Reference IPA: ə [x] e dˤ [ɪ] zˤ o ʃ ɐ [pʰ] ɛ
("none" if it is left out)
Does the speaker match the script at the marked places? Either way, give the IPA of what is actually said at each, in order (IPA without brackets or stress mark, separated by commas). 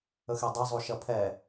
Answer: x, ɛ, pʰ